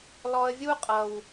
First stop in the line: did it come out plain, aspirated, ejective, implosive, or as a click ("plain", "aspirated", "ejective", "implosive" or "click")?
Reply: ejective